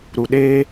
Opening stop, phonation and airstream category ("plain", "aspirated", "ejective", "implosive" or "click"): implosive